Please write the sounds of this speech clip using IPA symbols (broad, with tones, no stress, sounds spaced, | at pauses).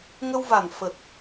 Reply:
ŋ ə˧ w v a˨˩ n f ə˨˩ t̚